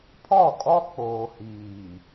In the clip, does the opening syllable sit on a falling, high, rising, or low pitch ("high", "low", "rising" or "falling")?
falling